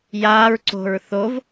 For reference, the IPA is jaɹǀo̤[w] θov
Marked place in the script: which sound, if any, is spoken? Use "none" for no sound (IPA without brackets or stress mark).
ɹ